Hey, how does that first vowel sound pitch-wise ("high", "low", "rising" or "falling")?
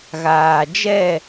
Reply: low